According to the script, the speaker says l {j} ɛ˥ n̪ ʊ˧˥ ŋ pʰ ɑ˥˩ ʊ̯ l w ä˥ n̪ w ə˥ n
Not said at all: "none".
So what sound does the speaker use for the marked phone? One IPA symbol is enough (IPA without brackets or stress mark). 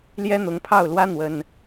j